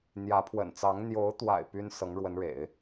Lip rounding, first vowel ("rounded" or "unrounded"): unrounded